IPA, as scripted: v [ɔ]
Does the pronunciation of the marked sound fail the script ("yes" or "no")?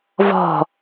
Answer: yes